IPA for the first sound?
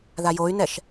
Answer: ð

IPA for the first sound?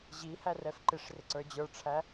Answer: ʑ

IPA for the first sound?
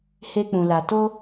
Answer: h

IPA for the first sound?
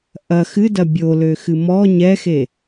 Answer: ʔ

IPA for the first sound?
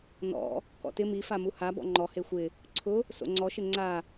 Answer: n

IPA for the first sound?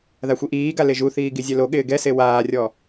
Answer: ð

